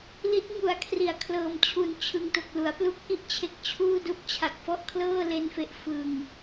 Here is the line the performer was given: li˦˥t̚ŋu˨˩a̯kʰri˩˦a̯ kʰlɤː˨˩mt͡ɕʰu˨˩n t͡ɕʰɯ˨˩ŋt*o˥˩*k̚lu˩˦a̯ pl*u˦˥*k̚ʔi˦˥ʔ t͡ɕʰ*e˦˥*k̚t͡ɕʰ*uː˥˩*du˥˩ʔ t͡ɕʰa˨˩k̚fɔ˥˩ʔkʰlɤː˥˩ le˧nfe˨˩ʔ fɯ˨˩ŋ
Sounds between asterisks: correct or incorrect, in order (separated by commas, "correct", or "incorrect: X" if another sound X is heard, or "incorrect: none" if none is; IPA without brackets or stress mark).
incorrect: o˨˩, correct, correct, correct